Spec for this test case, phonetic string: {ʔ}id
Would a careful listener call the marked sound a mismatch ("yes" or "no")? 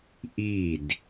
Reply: no